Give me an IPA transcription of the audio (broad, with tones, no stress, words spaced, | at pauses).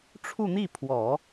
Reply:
ʈ͡ʂʰu˥˧n̪i˥˩pʰwɔ˨˩˦